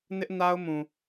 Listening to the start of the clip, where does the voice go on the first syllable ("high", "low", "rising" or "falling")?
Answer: high